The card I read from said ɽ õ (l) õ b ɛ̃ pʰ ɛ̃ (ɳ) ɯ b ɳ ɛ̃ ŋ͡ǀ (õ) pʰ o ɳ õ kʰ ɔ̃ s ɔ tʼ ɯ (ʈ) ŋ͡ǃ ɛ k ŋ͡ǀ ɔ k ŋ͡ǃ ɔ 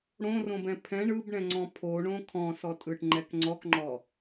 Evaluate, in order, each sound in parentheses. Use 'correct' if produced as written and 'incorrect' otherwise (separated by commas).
incorrect, correct, incorrect, correct